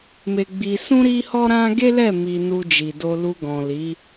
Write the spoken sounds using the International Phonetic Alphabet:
me˧ ɡ͡bi˧sũ˦ ɾi˦hɔ˦ɾã˦ ɡe˦lɛ˦˨ mi˧nu˧d͡ʒi˨do˧ lu˧ɡɔ̃˨li˨˦

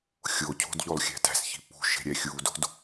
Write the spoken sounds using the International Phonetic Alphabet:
xʲocʰo̤d ʎolˠxʲæ̤tæ̤sçi̤ pṳ ʃe̤ɾʲæxʲudo̤d

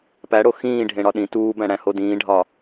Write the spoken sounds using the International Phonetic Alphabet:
pæɽo xĩːɖʱẽɽɒ ɗĩ tuːbæ̃ɽæ̃ hodĩːɖʱɒ

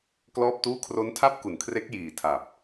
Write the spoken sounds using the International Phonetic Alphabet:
klɔː˥˩p̚tuː˥˩ kʰro˦˥ntʰa˥˩p̚ ku˨˩n kʰre˦˥k̚jiː˨˩tʰa˨˩p̚

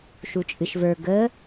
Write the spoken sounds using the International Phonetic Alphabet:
ʃut͡ʃʼɨʃvə˞ ɡə

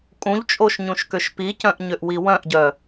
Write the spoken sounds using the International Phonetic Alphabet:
kʼũʎt͡ʃʼoʃɲũʃkøʃ picœ̃ʔɲøʔwi wœ̃ʔɟœ

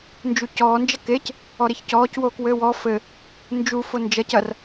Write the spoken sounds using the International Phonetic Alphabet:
nd͡ʒucɔː nd͡ʒɐkec | ɔɾeçcɔːc woːkwɘːwɔ fɘ | nd͡ʒu fond͡ʒɐc ɐr

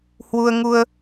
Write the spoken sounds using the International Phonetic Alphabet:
hwu˧ə̯ŋu˧ə̯

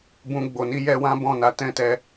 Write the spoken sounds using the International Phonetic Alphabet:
bũ˧ ɡ͡bo˨ni˧jɛ˧ wã˦ bɔ̃˦˨na˨˦tɛ̃˦tɛ˧

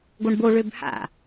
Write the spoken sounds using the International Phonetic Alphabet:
ɡoɳbo ɭøbha̰

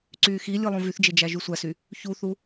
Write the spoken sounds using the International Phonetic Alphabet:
ǀyːxilʲɯ lˠõvyθd͡ʒe d͡ʒæʒysʷæsy | çuθu

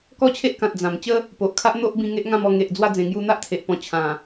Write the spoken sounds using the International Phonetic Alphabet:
kɔ˥˧t͡ɕʰe˦ʔkã˨t̚ d͡zã˨˩m t͡ɕə˦ | po˨ʔkʰa˦ʔn̪o˦ʔbĩ˧ ŋe˦ʔŋã˥˧mɔ˧ ŋe˨ʔd͡zwa˧ d͡zẽ˨˩ŋju˧n̪a˦ʔ t̪ʰe˨ʔpɔ̃˧ t͡ɕʰã˨˩

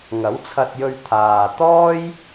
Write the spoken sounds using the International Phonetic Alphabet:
ŋɐ˨˥wt͡sʰɐ˧t̚jɵ˧ɥ t̪ʰaː˨t̪ɔː˥j

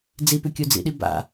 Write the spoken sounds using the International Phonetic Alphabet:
d͡zipʉkʲud͡zḭ ɗiba̰

